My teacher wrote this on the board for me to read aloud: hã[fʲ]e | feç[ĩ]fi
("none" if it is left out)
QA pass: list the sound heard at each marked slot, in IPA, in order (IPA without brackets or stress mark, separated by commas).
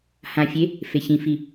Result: fʲ, ĩ